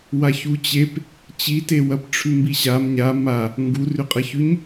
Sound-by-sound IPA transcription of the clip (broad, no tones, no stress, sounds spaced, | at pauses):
w a ç u t͡ɕ e p | t͡ɕ i t e w ɐ p ʈ͡ʂʰ ʉ m b i ɕ a m ɲ a m a | ŋ ɡ u r ʉ qʼ ɐ ç ʉ ɲ